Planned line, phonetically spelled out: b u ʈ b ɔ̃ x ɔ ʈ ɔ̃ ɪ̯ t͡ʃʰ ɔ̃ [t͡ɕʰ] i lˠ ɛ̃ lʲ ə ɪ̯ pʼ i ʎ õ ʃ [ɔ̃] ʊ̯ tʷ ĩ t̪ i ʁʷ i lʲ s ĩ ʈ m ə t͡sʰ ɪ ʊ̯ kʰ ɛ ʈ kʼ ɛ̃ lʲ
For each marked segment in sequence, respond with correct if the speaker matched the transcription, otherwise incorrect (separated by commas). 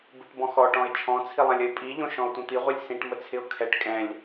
incorrect, correct